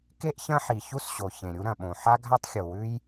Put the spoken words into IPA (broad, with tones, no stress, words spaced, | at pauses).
ke˥ʔçɐ̃˥ħi˩ çu˥sɕo˩ çẽ˩ɾʲu˥ ɾɐ̃˩ɓõ˩ ħa˥ɡʱa˥tˤxʲo˩wʉ˥j